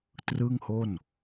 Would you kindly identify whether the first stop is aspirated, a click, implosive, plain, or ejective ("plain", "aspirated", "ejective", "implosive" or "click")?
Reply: plain